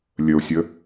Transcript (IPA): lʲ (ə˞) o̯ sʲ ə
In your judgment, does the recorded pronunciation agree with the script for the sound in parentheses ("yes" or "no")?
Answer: no